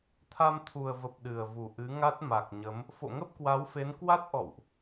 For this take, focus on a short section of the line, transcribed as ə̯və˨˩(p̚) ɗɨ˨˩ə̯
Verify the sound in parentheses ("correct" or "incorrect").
correct